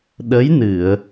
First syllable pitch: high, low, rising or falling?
rising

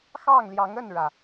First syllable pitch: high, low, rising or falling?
falling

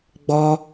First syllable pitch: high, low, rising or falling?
high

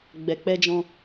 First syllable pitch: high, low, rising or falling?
low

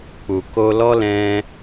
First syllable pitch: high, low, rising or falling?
low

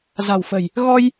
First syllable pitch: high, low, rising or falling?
low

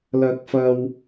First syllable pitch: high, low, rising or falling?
high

